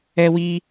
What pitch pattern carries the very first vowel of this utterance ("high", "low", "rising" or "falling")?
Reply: high